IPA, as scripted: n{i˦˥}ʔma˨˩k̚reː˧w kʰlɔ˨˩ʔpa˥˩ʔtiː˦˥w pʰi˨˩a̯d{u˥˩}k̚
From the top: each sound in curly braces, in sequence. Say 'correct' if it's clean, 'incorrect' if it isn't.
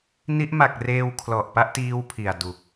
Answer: correct, incorrect

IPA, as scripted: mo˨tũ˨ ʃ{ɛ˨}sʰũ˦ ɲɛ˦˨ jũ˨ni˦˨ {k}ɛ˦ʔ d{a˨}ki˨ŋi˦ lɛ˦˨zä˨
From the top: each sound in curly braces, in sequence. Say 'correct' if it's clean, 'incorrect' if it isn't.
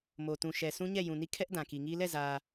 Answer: correct, incorrect, incorrect

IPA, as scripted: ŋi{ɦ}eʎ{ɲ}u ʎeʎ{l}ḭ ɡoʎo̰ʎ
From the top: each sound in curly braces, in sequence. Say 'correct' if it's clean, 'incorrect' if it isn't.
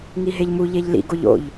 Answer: correct, incorrect, correct

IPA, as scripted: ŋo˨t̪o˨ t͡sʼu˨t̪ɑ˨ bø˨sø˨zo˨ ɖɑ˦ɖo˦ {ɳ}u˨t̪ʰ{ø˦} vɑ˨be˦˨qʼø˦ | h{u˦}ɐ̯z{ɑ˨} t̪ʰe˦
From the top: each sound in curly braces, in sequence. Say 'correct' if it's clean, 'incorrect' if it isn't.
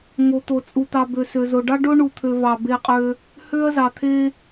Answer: correct, incorrect, incorrect, correct

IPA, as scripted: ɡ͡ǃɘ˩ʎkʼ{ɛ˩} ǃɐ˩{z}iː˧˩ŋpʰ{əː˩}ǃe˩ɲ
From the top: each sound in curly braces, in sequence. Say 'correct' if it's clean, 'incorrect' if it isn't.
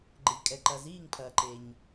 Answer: correct, correct, incorrect

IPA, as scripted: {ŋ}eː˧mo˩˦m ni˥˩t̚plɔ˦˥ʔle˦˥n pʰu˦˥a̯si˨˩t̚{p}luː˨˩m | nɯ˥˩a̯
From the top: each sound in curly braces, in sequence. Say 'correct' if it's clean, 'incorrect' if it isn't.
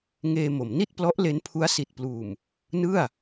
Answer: correct, correct

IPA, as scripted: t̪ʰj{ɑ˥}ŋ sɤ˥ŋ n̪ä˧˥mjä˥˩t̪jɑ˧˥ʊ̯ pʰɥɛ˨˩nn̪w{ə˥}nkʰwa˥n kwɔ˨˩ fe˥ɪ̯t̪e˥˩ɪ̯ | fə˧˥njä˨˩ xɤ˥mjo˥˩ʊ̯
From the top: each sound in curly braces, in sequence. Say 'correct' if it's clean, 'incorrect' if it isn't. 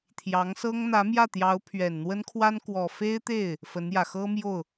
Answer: incorrect, correct

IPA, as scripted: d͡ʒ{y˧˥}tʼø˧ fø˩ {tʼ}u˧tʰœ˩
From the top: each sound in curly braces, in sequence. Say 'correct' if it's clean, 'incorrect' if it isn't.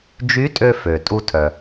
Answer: correct, correct

